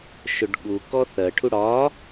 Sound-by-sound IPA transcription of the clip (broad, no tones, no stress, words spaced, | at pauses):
ʃʊɖɠu kɔθɜʈʰu ɽɒ